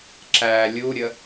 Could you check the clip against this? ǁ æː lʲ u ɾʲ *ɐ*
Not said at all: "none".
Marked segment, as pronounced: ə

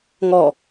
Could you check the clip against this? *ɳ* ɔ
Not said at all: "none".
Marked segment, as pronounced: ŋ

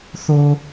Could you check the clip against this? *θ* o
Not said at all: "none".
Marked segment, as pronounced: θ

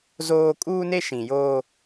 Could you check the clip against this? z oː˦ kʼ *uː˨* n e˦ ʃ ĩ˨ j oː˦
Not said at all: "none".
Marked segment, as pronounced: uː˦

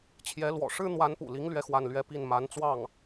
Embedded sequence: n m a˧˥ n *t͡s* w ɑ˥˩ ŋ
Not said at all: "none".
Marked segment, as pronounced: t͡s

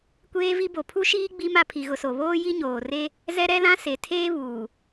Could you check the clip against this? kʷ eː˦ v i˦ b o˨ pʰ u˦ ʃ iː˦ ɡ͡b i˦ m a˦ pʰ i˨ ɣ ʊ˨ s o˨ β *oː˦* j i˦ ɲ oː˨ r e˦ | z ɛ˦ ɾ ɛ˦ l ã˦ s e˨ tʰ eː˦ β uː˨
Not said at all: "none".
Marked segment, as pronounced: oː˦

